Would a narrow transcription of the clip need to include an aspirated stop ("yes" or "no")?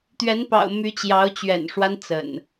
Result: no